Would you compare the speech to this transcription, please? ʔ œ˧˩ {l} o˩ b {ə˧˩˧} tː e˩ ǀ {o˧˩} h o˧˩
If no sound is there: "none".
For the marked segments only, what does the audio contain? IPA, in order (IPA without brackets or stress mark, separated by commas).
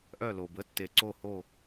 l, ə˩˥, o˧˩